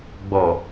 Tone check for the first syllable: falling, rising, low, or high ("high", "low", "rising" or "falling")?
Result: low